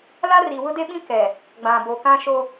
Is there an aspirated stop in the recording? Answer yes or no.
no